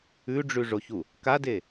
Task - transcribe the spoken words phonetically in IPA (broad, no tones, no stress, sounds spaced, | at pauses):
ʉ ɖ͡ʐ ʉ ʐ o ç u | k a d e